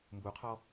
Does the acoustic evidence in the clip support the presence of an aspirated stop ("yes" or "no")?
yes